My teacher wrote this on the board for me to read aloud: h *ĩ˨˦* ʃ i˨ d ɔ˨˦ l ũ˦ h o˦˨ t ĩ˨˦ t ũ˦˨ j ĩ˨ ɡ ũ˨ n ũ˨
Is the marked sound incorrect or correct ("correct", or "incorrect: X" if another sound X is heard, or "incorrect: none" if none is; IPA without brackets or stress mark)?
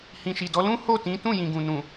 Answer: incorrect: ĩ˨